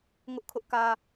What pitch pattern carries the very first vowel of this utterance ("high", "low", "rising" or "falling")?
high